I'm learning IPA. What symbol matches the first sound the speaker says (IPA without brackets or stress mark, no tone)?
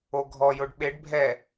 o